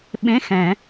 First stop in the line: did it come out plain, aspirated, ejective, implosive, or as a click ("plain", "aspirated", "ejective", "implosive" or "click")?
implosive